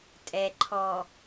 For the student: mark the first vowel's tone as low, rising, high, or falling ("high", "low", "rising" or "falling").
low